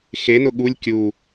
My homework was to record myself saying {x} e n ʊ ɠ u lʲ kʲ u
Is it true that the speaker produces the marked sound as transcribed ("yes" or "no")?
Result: yes